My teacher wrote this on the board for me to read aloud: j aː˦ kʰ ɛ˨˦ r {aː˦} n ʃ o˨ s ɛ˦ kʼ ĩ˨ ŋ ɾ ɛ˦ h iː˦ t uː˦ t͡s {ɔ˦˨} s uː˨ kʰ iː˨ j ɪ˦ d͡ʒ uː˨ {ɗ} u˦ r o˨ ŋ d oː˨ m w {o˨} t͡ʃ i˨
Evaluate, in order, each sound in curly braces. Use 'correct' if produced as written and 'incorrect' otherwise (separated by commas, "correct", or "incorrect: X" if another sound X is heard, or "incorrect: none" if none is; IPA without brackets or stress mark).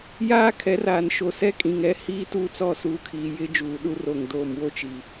incorrect: aː˨, correct, correct, incorrect: o˦